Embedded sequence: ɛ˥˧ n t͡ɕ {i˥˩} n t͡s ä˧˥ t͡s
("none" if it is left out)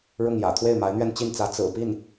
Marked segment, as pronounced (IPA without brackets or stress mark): i˥˩